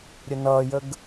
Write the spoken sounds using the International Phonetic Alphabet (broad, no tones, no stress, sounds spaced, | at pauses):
ɾʲ ə n ʌ j ə ɡ